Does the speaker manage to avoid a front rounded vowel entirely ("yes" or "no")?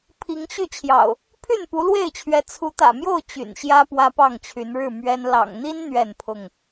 no